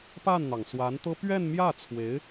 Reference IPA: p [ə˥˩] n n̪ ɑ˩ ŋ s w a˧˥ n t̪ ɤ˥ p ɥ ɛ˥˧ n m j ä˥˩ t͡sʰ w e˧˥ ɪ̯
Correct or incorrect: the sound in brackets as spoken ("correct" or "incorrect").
incorrect